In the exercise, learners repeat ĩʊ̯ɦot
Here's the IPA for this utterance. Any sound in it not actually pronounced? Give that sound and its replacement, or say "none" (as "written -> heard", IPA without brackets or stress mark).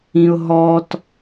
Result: o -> ɔ